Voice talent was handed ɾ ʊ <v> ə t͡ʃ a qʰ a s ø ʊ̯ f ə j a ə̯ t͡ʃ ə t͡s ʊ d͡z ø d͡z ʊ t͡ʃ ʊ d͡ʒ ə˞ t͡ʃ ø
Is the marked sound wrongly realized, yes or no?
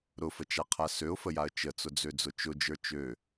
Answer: yes